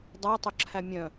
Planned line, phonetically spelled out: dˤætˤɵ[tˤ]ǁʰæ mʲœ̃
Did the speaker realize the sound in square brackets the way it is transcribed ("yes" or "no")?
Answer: no